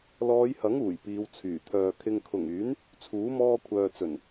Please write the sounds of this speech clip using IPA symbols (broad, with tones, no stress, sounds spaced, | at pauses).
l ɔː˨˧ j h ɐ˨˥ ŋ uː˨˩ j p iː˨˧ w t͡sʰ yː˨˩ t̪ʰ œː˨ kʰ ɪ˨ ŋ kʰ ʊ˨˩ ŋ yː˨˥ n | t͡sʰ uː˨˥ m ɔː˧ kʷʰ œː˨ t͡s ɵ˨˩ n